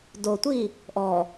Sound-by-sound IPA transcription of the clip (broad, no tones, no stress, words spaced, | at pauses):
dotʷi | ʔɔ